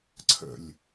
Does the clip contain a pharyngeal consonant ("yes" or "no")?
no